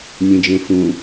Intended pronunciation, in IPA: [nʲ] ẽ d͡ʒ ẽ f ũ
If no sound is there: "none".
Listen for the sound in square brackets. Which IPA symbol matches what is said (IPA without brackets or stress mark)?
nʲ